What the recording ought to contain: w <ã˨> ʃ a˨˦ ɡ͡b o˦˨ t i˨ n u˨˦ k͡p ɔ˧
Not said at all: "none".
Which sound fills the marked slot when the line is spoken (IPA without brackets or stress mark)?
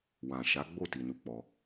ã˨